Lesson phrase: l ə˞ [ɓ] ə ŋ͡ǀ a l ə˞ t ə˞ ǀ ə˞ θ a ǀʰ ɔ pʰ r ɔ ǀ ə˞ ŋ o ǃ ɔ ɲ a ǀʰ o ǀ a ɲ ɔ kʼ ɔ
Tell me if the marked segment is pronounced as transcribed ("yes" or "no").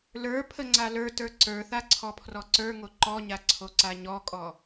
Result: no